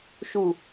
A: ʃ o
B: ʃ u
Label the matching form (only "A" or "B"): B